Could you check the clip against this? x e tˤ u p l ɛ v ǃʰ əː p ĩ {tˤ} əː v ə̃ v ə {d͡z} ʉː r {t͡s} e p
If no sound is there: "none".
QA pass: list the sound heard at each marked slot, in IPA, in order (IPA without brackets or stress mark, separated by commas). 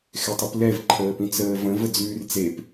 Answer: t͡s, d͡z, t͡s